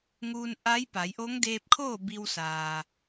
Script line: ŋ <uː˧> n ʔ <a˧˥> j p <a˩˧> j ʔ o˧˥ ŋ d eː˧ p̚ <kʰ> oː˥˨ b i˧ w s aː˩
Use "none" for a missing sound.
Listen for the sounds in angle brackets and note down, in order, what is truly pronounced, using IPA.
uː˧, a˧˥, a˩˧, kʰ

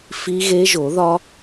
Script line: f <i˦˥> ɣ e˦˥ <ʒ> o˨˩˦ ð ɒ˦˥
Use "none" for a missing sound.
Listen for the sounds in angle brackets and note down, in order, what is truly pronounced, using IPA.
i˦˥, ʒ

